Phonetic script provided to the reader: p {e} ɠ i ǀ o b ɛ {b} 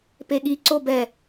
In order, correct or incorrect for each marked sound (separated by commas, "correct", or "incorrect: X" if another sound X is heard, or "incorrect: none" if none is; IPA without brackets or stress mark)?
correct, incorrect: none